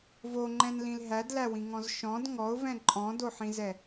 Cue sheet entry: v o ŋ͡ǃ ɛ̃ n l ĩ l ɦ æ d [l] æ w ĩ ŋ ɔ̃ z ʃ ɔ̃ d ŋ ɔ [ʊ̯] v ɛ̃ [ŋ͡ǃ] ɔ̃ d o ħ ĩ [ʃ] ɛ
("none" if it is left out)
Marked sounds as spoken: l, ʊ̯, ǃʼ, z

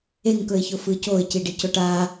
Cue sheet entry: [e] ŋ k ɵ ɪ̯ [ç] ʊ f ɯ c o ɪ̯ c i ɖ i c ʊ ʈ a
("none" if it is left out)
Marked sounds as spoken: e, ç

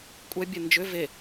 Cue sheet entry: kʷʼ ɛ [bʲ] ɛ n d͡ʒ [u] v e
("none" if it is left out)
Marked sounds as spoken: bʲ, ʏ

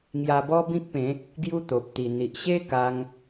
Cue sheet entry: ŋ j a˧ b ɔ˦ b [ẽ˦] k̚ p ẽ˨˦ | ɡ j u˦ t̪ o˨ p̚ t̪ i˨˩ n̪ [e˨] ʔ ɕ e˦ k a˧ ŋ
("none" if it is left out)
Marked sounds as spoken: ĩ˦, i˨

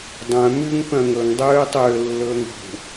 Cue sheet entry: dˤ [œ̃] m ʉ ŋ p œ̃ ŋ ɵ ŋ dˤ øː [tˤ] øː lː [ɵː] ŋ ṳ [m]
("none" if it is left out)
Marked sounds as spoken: œ̃, tˤ, ɵː, none

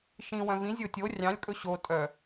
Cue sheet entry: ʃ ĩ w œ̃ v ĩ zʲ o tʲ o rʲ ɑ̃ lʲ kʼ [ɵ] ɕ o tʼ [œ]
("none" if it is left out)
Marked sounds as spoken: ɵ, œ

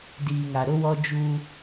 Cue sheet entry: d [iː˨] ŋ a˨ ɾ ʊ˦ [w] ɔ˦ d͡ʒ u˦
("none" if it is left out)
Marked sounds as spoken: iː˨, w

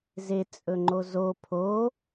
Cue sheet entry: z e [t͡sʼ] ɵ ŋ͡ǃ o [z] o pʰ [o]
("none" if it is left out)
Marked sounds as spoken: t͡sʼ, z, o

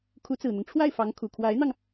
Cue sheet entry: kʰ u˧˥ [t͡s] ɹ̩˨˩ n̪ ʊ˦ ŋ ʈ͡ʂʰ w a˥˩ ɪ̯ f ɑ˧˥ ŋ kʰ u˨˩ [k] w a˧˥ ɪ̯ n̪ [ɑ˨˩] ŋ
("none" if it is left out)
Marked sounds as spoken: t͡s, kʰ, ɑ˧

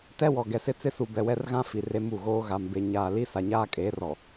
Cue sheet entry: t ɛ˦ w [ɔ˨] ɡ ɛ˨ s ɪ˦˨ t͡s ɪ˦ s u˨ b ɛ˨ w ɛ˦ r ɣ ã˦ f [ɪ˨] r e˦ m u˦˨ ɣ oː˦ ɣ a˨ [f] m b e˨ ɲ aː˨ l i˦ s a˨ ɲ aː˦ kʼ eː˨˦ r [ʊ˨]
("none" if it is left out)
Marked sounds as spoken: ɔ˨, i˨, none, ɔ˨

